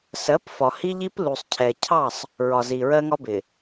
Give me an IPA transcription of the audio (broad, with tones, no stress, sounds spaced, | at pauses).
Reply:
s ɜ˨˦ p f ɒ˨ h i˦ ʎ i˦ p l u˨ sˤ cʰ ɛ˨ cʰ ɑ˦˨ sˤ | ɹ ɒ˨ z i˨ ɹ ɜ˦ ŋ ɒ˦ b ɪ˨